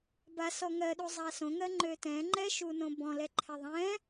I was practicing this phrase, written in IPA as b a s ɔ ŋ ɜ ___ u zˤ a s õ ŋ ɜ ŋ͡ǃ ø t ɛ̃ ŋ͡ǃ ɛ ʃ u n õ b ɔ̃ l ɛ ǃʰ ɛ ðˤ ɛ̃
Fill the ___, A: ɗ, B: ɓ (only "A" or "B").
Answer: A